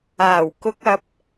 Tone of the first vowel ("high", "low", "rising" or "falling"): low